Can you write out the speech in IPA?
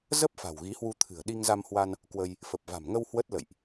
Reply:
z ə˦˥ p̚ f a̤˨˩ w ɣ i˨˦ h w u˧ t̪ʰ ɨ̤˨˩ ə̯ ɗ i˧ ŋ z a˧ m h w a˧ n | k w ə˧ j | f ə˨˩ p̚ v a̤˨˩ m ŋ ə˧ w h w ə˦˥ t̚ l ə̰˧˨ j ʔ

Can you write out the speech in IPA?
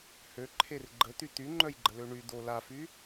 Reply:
h ø ǃʰ e r ɡ͡ǃ ə t̪ y t̪ y ŋ͡ǃ œ j ɡ͡ǃ ə l ø ɳ y d̪ o l a f y

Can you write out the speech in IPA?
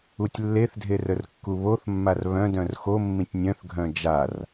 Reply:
u tʲ lː e θ dʱ e r ə r kː u β o θ mː a r β œ̃ d œ̃ r x o mː ĩ tʲ nʲ œ̃ θ ɡʱ œ̃ d͡ʒ a r

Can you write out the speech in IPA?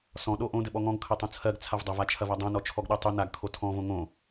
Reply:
s ɔ̃ ɗ o ʔ õ d ɘ ɓ ɔ ŋ ɔ̃ ɡ kʰ ɐ tˤ õ t͡sʰ ɜ ɡ t͡sʰ a v dˤ ɐ v a t͡ʃʰ ɐ v a dˤ õ n ɔ t͡ʃʰ ɔ ɡ ɗ ɜ tˤ o n a ɡ kʰ o tʰ ɔ̃ v õ ŋ õ

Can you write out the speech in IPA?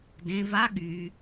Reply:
d ẽ v a ɠ y

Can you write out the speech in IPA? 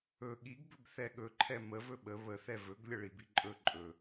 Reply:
ɵ ɠ i ɡ b ɵ b θ ɛ ɠ ɵ ǃʰ ɛ m ə v ɵ ɓ ə β ə θ ɛ v ɵ ɡ lʲ ə ɭ i b i ǃʼ ɵ ǃʼ ɵ

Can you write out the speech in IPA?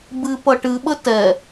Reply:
b ɨ p ʌ ʈ ɨ ɓ ə t ɛ

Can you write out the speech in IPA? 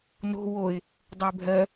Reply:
n o̤ w o ɪ̯ | dˤ ɛ bʱ ɜ

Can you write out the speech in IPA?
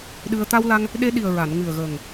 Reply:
ɗ ɨ˧ ə̯ t̪ a˧ w l a˧ ŋ | ɗ e˧ ɗ i˨˩ ə̯ ɹ a˨˩˨ n ŋ ɨ˨˩ ə̯ ɣ əː˨˩ ŋ

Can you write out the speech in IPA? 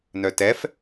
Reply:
n œ t ɛ f

